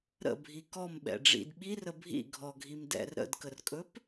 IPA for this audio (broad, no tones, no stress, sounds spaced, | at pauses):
ɾ ə̰ bʱ i k ɔ m ɓ ɛ̰ ɖ͡ʐ ḭ d ɓ i r ə bʱ ḭ ɡʱ ɔ ɡʱ i m d ɛ̰ r ɾ ə̰ d k ə r kʼ ɵ p